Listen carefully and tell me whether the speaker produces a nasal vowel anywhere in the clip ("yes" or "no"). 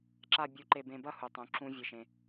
yes